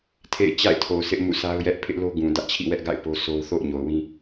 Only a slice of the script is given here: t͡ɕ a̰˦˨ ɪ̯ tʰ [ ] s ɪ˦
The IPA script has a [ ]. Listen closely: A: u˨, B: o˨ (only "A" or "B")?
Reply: B